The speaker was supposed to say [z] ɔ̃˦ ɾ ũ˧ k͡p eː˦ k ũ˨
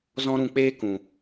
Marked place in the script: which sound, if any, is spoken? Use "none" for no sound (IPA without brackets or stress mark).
z